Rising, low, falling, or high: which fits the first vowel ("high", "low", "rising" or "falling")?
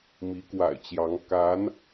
rising